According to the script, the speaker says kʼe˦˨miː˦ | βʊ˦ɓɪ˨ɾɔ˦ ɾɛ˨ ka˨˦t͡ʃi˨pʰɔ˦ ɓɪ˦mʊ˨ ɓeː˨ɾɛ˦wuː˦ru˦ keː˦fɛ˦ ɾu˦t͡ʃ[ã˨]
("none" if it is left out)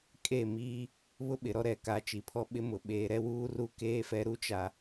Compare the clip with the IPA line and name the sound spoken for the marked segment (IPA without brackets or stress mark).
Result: a˨